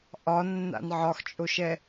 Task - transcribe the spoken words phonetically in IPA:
ʔɒnːa̰n ʕɒxt͡ʃʼoʃɛ

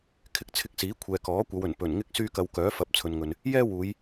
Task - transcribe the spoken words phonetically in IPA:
kʰɪ˧k̚t͡sʰɪ˧k̚siː˨˥kʷʰɛː˨ kɔː˨˥kʷɐ˨˧wɵ˨˩n pɵ˨˩nŋɪ˥k̚ syː˥kɐ˧w kœː˨˥fɐ˨˥p̚ t͡sʰɵ˨nŋɵ˨n | jɛː˥wuː˨˧j

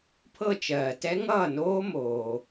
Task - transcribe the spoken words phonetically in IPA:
pʰɤ˥˧ t͡ʃɜː˩tɛ˦˥ ŋʌː˥˩noː˦˥ moː˩

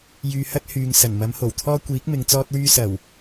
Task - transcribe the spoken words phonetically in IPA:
jyː˧hɐ˥t̚ hyː˨ŋ sɐ˨˩n mɐ˨˥mho˨˩wt̪ʰɔː˥ kʷiː˨˥k̚mɪ˨˧ŋ t͡sɔː˥t̚wyː˥ sɐ˨˩w

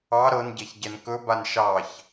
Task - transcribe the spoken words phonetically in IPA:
ɑ ɾɤnɟɛç ɟɛnkɵban ʃɑç

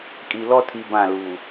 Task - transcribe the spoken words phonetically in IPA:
kʼi˨lɔ˦tʰi˨ bã˦˨lu˨

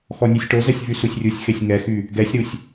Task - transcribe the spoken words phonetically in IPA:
xɔnʲesʲʈozɛsʲ vysusʲrʲusʲxesʲ ŋɛxy | ɡɛsʲɾusʲ

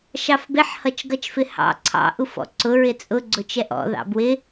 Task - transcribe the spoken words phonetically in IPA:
ʃɑfbɪħ hʌt͡ʃɡʌt͡ʃfɪhɑ̰ ǀʰɑ̰ ʔufɔ̰ǀʊ ɹɪt͡sʼʊ ɡ͡ǀʊt͡ʃɛʔɔ̰ ðɑ̰bwɪ

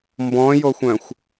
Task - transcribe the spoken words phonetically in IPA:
mbɔ̃joxʷœ̃xʷ

